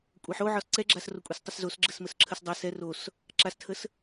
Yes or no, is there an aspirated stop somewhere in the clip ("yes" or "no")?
yes